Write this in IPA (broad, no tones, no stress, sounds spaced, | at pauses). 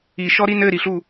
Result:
i ʃ ɔ ɾ i n ɘ ɾ i ɬ u